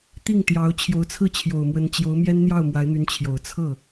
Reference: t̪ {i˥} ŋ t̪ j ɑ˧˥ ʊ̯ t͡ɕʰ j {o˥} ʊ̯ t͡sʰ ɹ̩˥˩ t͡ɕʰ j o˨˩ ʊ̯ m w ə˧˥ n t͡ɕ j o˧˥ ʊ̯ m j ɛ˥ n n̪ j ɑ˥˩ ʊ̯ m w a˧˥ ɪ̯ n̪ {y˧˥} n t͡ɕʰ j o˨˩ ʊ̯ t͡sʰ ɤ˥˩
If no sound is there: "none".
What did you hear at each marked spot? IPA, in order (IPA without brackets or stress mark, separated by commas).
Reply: i˥˩, o˧˥, y˧˥